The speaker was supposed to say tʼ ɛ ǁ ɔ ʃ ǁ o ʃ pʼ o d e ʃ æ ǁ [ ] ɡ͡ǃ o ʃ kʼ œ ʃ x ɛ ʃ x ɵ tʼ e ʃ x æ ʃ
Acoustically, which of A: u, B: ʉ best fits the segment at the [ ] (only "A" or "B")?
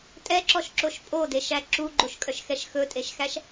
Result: A